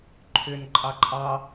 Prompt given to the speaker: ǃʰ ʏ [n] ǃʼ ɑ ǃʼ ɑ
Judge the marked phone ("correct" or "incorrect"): correct